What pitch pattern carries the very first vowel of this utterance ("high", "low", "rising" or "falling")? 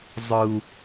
high